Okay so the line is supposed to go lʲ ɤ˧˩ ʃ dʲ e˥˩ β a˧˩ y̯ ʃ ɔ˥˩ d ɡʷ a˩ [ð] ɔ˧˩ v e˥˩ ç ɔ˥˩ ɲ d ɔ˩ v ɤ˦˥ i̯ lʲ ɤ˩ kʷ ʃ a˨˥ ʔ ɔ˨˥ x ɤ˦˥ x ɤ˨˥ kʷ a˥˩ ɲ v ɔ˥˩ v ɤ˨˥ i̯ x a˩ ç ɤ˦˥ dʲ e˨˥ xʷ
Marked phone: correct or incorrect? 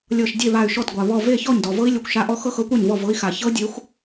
incorrect